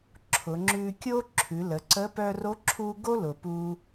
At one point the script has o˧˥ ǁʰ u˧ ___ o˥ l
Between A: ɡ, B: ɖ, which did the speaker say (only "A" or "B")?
A